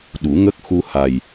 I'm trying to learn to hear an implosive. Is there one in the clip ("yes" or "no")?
yes